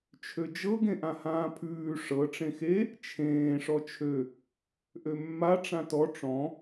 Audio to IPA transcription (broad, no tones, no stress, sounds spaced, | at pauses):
t͡ʃʰ ø d͡ʒ ɤ ɡ ẽ ʔ ã h ãː pʰ ʉː ʂ ɤ ʈ͡ʂ ẽ x e | t͡ʃʰ ẽː ʂ ɔ t͡ʃʰ ø | ʔ ø mː a ʈ͡ʂ ã t ɔ ʈ͡ʂ ɔ̃